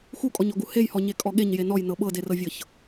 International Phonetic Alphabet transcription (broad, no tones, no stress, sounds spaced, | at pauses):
x u kʼ ɔ ɲ ɔ ɡ u h e j h ɔ ɲ e kʼ ɔ ɠ e ɲ j e n ɔ j n ɤ ɓ ɤ d e r ɤ vʲ ɤ ç